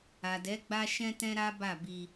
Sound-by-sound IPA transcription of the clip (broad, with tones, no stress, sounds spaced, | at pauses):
a˨ d ɛ˨˦ ɡ͡b a˦ ʃ ɛ̃˦ t ɛ̃˦ ɾ a˦ b a˦˨ b i˧